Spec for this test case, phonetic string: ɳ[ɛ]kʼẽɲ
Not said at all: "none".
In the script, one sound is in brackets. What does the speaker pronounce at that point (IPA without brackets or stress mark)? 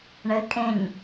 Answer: ɘ